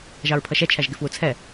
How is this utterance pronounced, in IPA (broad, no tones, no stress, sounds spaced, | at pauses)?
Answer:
ʒ ɑ ɹ pʰ ʌ ʃ ɛ t͡ʃʰ æ ʒ ɡ ɪ f w u t͡sʰ ɛ